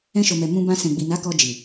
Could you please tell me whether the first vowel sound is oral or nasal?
nasal